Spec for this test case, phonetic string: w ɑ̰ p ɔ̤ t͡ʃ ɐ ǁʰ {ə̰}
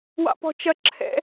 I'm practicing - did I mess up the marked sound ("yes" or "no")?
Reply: yes